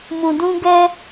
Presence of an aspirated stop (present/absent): absent